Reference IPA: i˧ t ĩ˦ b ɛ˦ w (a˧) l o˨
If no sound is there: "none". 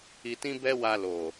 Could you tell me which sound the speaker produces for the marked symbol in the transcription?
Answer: a˧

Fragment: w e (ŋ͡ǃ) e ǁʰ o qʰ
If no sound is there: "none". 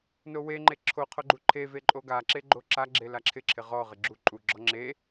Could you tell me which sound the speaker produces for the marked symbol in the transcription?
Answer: ŋ͡ǃ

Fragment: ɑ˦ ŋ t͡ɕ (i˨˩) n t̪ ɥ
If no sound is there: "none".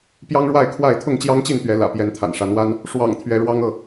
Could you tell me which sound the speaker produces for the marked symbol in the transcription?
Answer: i˥˨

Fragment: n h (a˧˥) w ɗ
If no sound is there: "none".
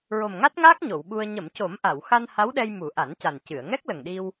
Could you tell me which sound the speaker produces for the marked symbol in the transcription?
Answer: a˧˥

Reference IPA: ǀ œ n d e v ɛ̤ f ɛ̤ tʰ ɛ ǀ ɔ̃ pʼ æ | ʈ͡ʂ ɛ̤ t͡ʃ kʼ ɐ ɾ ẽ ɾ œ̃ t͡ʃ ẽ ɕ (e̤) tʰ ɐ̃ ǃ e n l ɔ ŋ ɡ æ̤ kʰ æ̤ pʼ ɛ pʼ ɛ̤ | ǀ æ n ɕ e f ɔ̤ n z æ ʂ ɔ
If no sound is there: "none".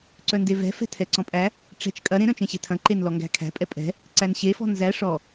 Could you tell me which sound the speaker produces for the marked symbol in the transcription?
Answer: e̤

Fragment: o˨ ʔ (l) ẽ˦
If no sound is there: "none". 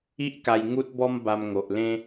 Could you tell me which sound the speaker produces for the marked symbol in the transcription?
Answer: l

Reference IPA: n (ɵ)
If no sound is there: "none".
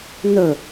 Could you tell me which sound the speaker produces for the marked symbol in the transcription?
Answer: ɵ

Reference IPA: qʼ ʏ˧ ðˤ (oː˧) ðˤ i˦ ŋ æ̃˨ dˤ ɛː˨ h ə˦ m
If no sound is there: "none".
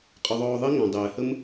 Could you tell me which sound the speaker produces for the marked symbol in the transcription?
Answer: oː˧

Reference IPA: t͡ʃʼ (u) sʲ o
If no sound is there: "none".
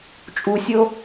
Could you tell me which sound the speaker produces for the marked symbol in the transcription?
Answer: u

